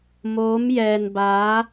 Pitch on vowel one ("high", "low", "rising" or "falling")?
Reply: rising